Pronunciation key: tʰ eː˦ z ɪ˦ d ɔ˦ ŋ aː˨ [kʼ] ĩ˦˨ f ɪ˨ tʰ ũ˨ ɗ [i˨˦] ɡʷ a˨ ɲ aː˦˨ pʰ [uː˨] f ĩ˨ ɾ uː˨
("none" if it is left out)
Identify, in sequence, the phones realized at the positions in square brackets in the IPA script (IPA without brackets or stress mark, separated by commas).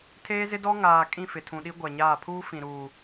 kʼ, i˦, uː˦